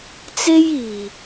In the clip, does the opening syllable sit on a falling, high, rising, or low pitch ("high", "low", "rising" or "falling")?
high